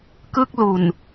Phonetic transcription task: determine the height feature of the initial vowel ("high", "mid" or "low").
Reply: high